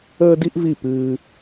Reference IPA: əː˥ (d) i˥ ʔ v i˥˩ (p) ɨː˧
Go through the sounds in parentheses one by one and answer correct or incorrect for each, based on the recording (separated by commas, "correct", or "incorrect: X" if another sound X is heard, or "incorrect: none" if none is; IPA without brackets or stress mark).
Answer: correct, correct